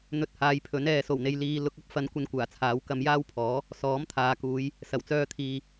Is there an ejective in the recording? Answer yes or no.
no